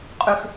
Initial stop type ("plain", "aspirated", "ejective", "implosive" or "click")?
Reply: ejective